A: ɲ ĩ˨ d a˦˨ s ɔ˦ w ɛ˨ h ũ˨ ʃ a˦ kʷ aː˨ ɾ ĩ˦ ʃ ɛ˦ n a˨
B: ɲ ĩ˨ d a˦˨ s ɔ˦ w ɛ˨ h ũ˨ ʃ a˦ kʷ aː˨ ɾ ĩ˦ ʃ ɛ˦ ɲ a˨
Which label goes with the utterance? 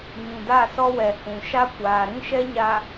B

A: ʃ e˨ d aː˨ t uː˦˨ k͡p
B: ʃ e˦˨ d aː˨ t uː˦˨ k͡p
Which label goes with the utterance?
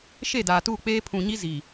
B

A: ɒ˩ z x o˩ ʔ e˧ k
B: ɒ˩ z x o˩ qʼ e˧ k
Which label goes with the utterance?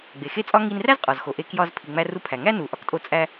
A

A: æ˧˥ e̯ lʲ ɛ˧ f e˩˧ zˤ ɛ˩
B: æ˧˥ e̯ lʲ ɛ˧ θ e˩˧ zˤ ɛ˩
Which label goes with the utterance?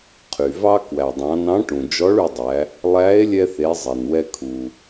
B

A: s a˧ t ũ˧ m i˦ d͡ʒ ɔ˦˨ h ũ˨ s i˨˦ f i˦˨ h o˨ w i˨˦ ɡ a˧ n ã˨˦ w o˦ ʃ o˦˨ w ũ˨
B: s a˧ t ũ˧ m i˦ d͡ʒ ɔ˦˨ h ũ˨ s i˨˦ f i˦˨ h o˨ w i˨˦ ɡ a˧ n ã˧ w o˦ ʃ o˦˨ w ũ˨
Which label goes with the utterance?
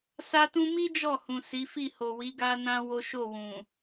B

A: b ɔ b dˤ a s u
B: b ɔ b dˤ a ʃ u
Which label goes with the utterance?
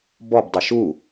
B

